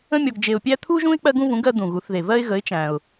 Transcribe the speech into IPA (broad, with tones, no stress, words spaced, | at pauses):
ə̃˥mʲɔ˧ɡd͡ʒe˧ʊ̯pʲæ˥ t̪ʰu˥ʒũ˥ɪ̯ k͡pɜ˧ɡũ˧vũ˩˧ɡ ɜ˧d̪ũ˩ɣu˩˧θ ðe˩vɜ˧ɪ̯ɣə˩˧ɪ̯ t͡ʃæ̃˩ʊ̯